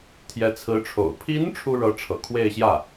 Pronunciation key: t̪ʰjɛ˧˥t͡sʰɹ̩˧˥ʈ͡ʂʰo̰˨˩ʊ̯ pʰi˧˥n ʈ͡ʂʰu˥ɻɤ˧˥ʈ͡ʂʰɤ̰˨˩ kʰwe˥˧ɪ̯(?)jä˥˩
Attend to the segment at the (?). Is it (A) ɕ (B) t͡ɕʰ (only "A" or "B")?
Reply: A